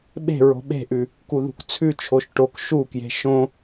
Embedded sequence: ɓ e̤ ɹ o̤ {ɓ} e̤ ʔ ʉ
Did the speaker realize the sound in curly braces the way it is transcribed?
yes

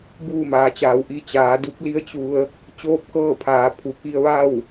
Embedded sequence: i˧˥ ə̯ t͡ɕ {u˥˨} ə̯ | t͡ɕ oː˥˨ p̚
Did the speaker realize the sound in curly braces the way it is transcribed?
no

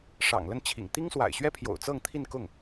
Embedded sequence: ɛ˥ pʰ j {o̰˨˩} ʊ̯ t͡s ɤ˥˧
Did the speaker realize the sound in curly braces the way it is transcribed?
yes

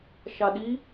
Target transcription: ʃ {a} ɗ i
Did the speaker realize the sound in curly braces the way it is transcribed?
yes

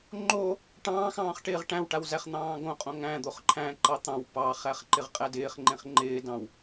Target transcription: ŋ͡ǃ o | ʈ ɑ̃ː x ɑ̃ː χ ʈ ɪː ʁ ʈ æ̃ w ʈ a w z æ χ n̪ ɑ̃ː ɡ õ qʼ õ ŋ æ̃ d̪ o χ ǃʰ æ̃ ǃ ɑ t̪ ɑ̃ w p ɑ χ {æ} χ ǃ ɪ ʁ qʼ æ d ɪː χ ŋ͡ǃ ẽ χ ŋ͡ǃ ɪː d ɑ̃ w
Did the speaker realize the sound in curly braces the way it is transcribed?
yes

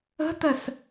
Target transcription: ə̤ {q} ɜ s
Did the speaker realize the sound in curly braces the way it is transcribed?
no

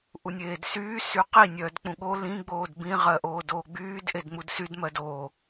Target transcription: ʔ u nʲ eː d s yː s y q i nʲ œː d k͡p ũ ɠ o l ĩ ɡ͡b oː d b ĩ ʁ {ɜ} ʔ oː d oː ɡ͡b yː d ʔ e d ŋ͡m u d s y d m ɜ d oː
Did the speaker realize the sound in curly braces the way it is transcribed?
yes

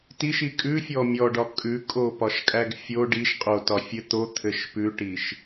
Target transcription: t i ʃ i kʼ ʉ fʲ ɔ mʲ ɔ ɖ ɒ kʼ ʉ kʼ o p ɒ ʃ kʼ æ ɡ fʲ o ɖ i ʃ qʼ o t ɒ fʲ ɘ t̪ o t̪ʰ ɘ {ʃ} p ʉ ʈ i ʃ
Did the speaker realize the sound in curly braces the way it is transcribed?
yes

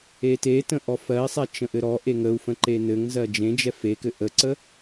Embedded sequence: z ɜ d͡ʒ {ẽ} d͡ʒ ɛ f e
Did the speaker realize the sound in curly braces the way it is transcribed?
yes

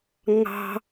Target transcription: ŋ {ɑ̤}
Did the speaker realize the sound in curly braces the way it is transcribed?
yes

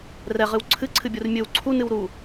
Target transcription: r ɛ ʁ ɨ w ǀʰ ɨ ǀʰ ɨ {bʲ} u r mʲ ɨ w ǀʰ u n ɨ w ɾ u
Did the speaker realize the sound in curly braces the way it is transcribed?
yes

